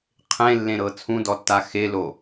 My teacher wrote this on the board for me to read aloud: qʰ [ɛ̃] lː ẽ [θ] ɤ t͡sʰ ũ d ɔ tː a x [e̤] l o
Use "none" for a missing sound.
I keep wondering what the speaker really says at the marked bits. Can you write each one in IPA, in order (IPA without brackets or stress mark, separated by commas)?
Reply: ẽ, ɾ, e